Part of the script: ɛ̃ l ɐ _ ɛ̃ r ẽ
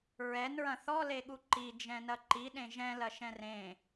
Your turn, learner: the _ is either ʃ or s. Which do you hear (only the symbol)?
ʃ